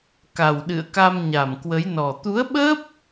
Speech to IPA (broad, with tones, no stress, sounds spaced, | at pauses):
k a˨˩ w ɗ ɨ̰˧˨ ə̯ k a˧ m ɲ a˨˩ m k w ə˨˦ j n ɔ˨˩ t̪ u˨˦ ə̯ ɓ əː˦˥ p̚